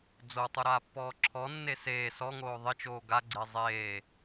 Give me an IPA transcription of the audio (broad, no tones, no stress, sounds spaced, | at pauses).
d͡z o tˤ u ɾ aː pː ɔː ǁʰ ɔ nː e s eː s ɔ ŋ oː ðˤ ɪ t͡ʃ oː ɡ a ɡ͡ǀ e zˤ eː